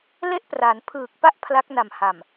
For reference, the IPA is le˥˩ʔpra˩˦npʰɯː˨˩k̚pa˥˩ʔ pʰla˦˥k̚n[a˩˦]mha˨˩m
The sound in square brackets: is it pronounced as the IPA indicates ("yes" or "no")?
no